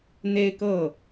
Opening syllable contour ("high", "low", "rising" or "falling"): high